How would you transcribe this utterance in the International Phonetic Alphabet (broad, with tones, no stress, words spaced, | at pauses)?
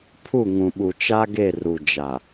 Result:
pʰu˦˨ ŋũ˨ɓu˨ t͡ʃa˦ɡe˦˨ru˨ d͡ʒa˨